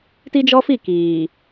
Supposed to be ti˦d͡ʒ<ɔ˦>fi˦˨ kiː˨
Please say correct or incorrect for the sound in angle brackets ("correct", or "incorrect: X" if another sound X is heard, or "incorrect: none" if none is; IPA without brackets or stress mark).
correct